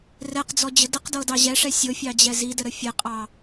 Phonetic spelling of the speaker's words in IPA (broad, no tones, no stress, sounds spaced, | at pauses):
r ɛ q d͡z ɔ d͡ʑ ə d ə q d ɤ d ɑ ʑ ɛ ʂ ɛ sʲ ɤ fʲ ɑ d͡ʑ ɛ z i d ə ɾ ə fʲ ɛ qʼ ɑ